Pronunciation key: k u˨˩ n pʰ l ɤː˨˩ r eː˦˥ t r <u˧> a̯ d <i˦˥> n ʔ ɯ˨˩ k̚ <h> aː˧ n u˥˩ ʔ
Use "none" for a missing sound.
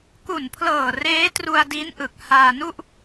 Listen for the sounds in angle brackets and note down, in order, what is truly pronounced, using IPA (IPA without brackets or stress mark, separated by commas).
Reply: u˧, i˦˥, h